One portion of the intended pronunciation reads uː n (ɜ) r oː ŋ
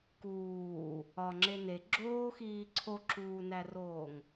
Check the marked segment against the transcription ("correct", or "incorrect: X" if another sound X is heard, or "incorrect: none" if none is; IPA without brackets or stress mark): incorrect: æ